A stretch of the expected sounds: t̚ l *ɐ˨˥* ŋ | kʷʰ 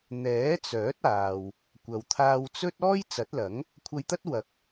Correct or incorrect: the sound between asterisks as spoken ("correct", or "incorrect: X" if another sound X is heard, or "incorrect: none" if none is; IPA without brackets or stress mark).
correct